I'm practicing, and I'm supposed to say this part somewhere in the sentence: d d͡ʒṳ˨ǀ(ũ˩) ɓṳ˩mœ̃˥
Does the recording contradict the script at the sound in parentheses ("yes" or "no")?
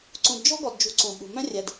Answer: no